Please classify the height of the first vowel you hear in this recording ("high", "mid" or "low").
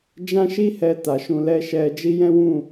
low